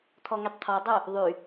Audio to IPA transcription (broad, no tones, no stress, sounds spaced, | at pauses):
t̪ʰ ɔ ŋ y tˤ t̪ʰ ɔ dˤ o | ðˤ y